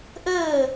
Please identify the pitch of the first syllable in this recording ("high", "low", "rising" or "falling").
falling